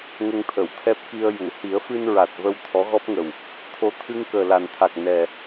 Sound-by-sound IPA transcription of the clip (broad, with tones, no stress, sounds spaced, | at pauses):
ŋ ə˧ ŋ t̪ʰ ə˨˩˨ w t̪ʰ ɛ˦˥ p̚ k i˧ ə̯ j u˨˩˨ h i˨˩˦ ə̯ f ɨ˧ n ɹ a˨˩ t̚ v ə˧ w t̪ʰ ɔ˧˥ ɣ ɔ˦˥ p̚ ŋ ə˨˩ w | t̪ʰ o˧ t̪ʰ ɨ˧ ŋ k əː˨˩ l a˨˩ n t̪ʰ a˨˩ k̚ n ɛ˨˩